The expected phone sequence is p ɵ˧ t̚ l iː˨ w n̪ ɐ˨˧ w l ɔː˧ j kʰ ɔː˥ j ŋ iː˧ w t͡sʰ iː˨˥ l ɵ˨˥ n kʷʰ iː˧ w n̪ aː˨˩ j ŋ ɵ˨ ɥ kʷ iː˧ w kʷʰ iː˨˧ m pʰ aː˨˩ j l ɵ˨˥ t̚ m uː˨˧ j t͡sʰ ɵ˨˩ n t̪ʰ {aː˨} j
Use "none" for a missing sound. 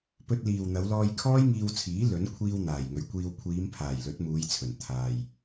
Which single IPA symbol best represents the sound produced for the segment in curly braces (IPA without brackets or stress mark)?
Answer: aː˨